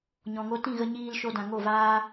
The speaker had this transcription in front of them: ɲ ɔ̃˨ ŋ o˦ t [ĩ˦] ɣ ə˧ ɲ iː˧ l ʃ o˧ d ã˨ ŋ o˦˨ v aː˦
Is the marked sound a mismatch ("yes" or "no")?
yes